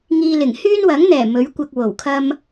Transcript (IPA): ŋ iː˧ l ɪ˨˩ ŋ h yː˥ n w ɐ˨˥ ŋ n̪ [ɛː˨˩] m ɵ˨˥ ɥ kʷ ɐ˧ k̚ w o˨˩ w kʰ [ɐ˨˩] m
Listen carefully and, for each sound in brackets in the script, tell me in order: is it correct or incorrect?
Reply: correct, incorrect

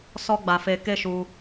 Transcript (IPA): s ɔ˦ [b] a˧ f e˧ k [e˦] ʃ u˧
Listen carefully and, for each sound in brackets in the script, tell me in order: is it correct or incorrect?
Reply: incorrect, correct

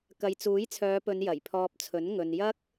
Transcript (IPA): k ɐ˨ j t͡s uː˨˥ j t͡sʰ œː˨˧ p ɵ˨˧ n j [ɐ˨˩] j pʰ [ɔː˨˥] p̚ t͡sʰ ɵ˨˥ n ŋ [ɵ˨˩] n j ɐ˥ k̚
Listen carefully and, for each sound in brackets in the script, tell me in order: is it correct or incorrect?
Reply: correct, incorrect, incorrect

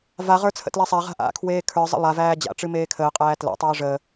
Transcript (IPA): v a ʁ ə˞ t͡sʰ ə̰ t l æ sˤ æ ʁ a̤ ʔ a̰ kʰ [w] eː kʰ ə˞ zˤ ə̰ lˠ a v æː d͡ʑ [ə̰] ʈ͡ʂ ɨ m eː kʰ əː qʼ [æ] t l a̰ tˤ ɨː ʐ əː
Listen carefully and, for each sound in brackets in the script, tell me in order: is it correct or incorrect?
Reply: correct, incorrect, incorrect

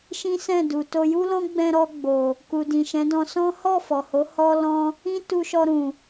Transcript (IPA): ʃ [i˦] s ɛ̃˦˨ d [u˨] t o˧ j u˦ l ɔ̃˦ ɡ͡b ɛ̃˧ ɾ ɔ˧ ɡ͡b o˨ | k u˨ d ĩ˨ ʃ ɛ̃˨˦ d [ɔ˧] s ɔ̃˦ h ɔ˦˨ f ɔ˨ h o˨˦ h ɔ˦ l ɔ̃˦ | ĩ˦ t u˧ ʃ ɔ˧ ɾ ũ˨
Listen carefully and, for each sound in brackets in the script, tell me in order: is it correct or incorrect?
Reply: incorrect, correct, incorrect

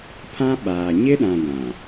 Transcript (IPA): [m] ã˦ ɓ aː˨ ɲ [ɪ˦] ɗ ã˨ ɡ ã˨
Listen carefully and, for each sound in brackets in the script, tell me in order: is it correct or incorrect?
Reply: incorrect, correct

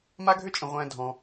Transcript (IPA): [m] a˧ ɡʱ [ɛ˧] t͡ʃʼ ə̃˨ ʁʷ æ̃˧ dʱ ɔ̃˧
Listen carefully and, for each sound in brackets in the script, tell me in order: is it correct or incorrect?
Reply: correct, incorrect

